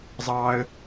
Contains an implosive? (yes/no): no